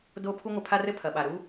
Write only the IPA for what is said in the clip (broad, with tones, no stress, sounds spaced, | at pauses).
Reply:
d o˦ pʰ u˦ ŋʷ ɘ˧ pʰ a˦ r ɘ˦ pʰ ɐ˨ ɓ a˨ ɾ u˦